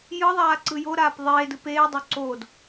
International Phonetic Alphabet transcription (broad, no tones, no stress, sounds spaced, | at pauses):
j ɯ ðˤ aː ǀ ɯ j o ɾ aː p ðˤ eː d ɯ p eː dˤ o ǀ oː d